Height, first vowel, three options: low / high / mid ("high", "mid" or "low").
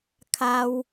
low